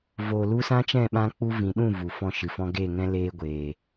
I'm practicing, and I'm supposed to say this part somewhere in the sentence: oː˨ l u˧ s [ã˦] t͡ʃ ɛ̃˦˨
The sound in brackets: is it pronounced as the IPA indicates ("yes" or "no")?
yes